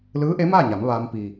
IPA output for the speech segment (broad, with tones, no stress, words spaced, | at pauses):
lɯː˧˥ʔe˧˥maː˥˨ɲa˩˧m ʋaː˧m pi˩